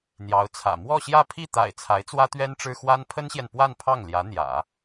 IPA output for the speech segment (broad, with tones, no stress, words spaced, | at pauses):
n̪jɑ˧˥ʊ̯t͡sʰä̰˨˩ mwɔ˥˧ɕjä˥˧ pʰi˥˩t̪a̰˨˩ɪ̯ t͡sʰa˧˥ɪ̯t͡swä˥t̪ɥɛ˥n ʈ͡ʂɻ̩˥ xwa˥n pʰə˥nɕjɛ˨npwa˥˧n pʰɑ˥˩ŋ ljä˧˥n̪jä̰˨˩˦